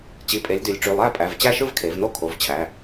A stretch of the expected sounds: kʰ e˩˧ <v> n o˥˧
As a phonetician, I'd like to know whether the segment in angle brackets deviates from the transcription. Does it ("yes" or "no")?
no